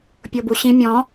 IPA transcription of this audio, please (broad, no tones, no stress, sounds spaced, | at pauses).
pʲ o b u ɕ ĩ mʲ ɔ̃